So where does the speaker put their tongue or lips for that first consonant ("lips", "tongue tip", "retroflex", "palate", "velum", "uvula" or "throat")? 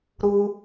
tongue tip